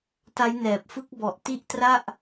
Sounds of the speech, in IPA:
t a˦˥ j n ɛː˨˩ p̚ f ɯ˦˥ k̚ b ɔ˨˩ ʔ t i˥˩ ʔ t r a˥˩ ʔ

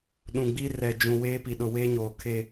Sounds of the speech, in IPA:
ɗ ũ˨ ɡ͡b iː˦ r ɛ˨ d͡ʒ ũ˨ w eː˦ p i˨ ɗ ʊ˨ w eː˦ ɲ oː˨ kʰ e˦˨

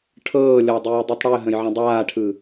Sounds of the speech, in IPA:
ʈʰ ɤː lʲ ɔ dˤ ʉː dˤ ɯ tˤ ɽ ʉ ə̯ ɦ ə̃ j ʕ ə̃ dˤ aː ʈʰ ɯ

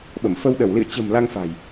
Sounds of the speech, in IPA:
ɓ ə˧˩ m f ə˧ w ɗ ə˧˩ w l ḭ˧˨ ə̯ t͡ɕ ə̤˨˩ m l a˧ ŋ f a̤˨˩ j

